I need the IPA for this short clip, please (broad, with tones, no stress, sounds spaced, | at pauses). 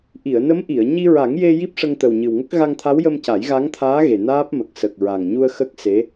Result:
ʔ i˨˩˨ ə̯ n ə˧˥ m ʔ i˨˩˨ ə̯ ɲ i˧ ɹ a˨˩˦ ŋ j e˧ j i˦˥ p̚ ʂ ə˧ ŋ t̪ ə˨˩ w ɲ ɨ˨˩ w ŋ ə˦˥ k̚ ɣ a˧ ŋ t̪ʰ a˧˥ w j ə˧ m c a˨˩˦ j ɣ a˧˥ ŋ t̪ʰ aː˧˥ ɣ e˨˩ n aː˦˥ p̚ m ə˨˩ k̚ s ə˨˩ k̚ ɹ a˨˩ ŋ ɲ u˧ ə̯ x ə˦˥ k̚ s e˧˥